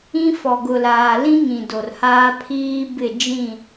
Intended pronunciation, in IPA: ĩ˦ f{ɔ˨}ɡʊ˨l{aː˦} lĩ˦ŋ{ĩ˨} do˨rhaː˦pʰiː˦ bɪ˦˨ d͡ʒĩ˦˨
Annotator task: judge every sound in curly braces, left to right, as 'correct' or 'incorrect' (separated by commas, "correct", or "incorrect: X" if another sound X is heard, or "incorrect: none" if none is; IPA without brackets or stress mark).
correct, incorrect: aː˨, correct